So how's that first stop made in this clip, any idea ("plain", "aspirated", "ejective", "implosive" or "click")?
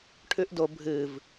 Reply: aspirated